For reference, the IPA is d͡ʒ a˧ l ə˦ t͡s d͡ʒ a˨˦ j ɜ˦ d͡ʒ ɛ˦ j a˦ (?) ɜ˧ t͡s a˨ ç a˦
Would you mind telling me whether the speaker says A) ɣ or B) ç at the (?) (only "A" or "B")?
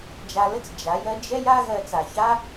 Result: A